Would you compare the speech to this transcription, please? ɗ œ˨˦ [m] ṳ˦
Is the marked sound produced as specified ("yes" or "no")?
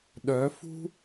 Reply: no